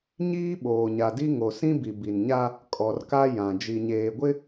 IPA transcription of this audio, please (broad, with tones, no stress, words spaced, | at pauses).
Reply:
ɲiː˦ɓoː˨ɲa˨di˦ ŋo˨sĩ˦bi˨ bi˨nɲa˦ | kʼɔ˨rka˦ jã˨ d͡ʒi˨ɲeː˨ɡʷɪ˦